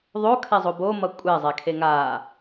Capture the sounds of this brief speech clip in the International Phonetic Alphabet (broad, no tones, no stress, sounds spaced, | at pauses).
ðˤ o kʰ ɛ zˤ o b o m ʌ kʷʼ ɛ zˤ ɛ kʰ e ŋ a